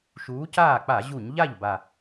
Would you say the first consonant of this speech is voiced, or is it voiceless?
voiceless